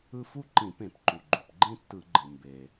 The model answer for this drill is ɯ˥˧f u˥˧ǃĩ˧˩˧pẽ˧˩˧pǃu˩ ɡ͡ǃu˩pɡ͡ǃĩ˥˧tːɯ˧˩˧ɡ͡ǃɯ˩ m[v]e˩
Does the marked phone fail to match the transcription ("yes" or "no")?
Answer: yes